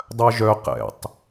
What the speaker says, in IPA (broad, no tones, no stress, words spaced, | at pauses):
dˤœʒœ qɛ̰tˤ